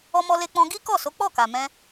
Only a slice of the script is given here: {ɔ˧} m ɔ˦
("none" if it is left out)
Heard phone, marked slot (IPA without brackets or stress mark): ɔ˦